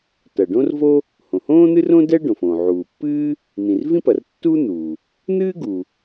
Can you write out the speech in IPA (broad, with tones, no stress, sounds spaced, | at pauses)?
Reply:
t ɐ˩ ɖ õ˥ r v o˥ | h õ˩ h õː˥ n̪ ɨ˥ r õ˥ d ɛ˥ ɖ õ˩ f õː˩ ʕ uː˩ pː ɨː˥ | n̪ ĩ˩ r v ĩ˥ p ɐ˩ r tː uː˥ n̪ uː˩ | n̪ ɨː˥ ɡ u˩